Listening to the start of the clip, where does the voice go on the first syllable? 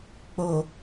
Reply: low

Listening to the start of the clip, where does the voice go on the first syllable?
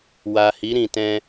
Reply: low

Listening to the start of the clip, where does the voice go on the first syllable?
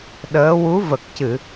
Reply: rising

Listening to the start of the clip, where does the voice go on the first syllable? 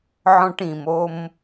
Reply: high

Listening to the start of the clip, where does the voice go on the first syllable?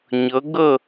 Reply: rising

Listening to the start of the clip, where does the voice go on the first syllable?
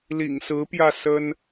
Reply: low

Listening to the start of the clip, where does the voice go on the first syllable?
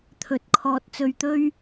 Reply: rising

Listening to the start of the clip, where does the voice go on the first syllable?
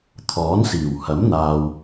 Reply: rising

